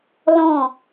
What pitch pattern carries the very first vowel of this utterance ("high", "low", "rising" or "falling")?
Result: falling